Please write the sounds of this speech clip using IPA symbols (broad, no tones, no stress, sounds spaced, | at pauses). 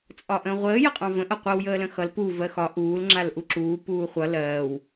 t͡sʼ ɒ ʔ ə̃ː ʁʷ əː j ə qʼ ɑ̃ v ə̃ ʔ ʌ qʷ ʌ w j əː l ə̃ x ʌ l p u v ɜ x ɒ ʔ uː l ŋ͡ǁ a l ʔ u ǁ uː p uː χʷ ʌ l ɜː w